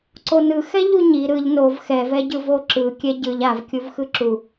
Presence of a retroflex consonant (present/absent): absent